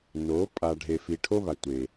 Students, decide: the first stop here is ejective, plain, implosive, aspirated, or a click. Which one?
ejective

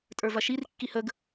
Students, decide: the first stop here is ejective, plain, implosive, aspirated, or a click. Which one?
ejective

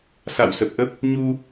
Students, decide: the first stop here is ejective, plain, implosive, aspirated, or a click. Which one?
plain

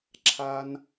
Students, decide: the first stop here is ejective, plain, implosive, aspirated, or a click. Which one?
click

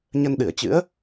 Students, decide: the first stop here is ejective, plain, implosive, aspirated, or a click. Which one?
implosive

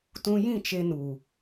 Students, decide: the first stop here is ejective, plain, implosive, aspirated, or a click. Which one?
plain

